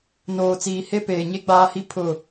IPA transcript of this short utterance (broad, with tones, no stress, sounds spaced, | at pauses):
n oː˨ t͡s iː˨ h e˦ p eː˨ ɲ e˦ ɡ͡b aː˦ h i˦ pʰ ʊ˨